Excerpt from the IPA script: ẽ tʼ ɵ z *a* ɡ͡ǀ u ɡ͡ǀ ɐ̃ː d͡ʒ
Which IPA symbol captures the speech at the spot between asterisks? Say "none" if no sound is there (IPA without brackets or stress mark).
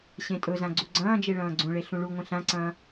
ã